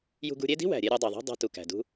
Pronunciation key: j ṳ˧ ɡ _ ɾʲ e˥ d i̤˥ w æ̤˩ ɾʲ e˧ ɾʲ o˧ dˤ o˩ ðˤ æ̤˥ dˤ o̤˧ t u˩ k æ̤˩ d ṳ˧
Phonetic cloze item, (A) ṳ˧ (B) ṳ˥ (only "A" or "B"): A